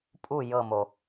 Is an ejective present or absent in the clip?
present